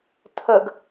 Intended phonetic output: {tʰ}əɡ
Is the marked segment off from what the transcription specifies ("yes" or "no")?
no